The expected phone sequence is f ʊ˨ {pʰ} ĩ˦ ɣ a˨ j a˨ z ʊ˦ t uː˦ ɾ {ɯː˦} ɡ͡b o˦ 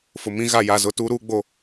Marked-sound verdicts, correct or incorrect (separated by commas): incorrect, incorrect